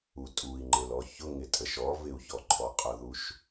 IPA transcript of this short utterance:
u tʼ u i̯ ŋ͡ǃ ɪ l ɔ ç ʊ ŋ ɪ tʼ ə ʃ ɔ v ɪ u̯ ç ɔ ǃʼ ɔ qʼ ʊ ð u ʃ

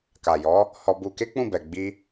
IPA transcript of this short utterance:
k a˨ j ɔ˨˦ | h ɔ˧ b u˧ k e˦ k͡p ũ˦˨ b ɛ˨ ɡ͡b i˧

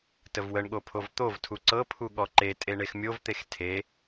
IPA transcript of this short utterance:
t ə v w ə ɳ ɠ o pʰ o v t̪ o v tʰ u ǀ ɤ pʰ u ɠ ɔ ǃ e tʼ e ɳ e x mʲ o v t̪ e x tʰ e

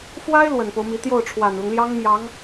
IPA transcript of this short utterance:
f w a˥ ɪ̯ l w ə˨˩ n p o˦ ʊ̯ m i˧˥ t̪ j o˥˩ ʊ̯ ʈ͡ʂʰ w a˨˩ n l ʊ˦ ŋ l j ɑ˥ ŋ m j ɑ˧˥ ŋ

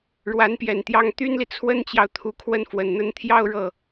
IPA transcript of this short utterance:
ɻ w a˧˥ n p j ɛ˨˩ n t̪ j ɑ˥ ŋ t̪ y˥ n l i˨ t͡sʰ w ə˥ n t͡ɕ j ɑ˨ ʊ̯ t̪ʰ u˧˥ kʰ w ə˥ n f w ə˨˩ n n̪ ə˥˧ n t̪ʰ j ɑ˥˧ ʊ̯ ɻ ɤ˥˩

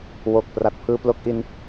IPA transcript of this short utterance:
w o˨˩ k̚ p r a˨˩ t̚ pʰ ɯː˧ p l o˦˥ k̚ ʔ i˧ n

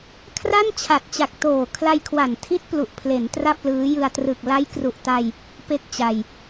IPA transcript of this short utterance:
kʰ r a˥˩ n t͡ɕʰ a˨˩ t̚ t͡ɕ a˨˩ k̚ t oː˨˩ kʰ l a˧ j kʰ w a˨˩ n tʰ i˦˥ t̚ p l u˨˩ ʔ pʰ l e˩˦ n t r a˥˩ p̚ l ɯː˦˥ j ɯ˧ a̯ t r ɯ˨˩ k̚ l a˦˥ j k r u˨˩ ʔ t a˧ j | p e˦˥ k̚ t͡ɕ a˧ j

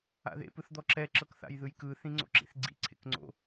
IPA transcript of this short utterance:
a̰ ð ḛ p ɯ θ d̪ ɔ ǁ ɛ ǁ ɤ k θ a̰ j ð ɯ j k ɯ θ ĩ ŋ͡ǀ o̰ ǁ ḭ θ ɡ͡ǀ ḭ ǀʰ ḛ k ŋ͡ǀ o̰

